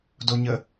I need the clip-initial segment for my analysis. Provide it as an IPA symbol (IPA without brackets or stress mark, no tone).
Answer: d